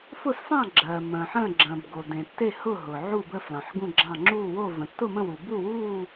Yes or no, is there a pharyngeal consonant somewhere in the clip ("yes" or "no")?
yes